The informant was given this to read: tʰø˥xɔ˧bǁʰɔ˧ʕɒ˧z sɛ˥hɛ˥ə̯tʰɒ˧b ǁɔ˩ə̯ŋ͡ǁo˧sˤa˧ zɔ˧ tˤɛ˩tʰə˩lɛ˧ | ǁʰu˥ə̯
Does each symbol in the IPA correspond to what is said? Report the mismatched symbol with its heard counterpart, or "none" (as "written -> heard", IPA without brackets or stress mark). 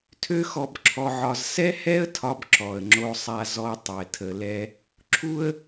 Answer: none